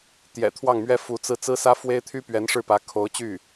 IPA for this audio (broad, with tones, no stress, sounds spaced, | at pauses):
t̪ j ɛ̰˨˩ t̪ʰ w ɑ˥˩ ŋ m ɥ ɛ˥ f u˧˥ t͡s ɹ̩˥˩ t͡s ɹ̩˥ s ä˥ f w e˥ ɪ̯ t̪ʰ y˥ p ɥ ɛ˧˥ n ʂ ɻ̩˥˩ p ä˧˥ kʰ o˧˥ ʊ̯ t͡ɕ y˥˩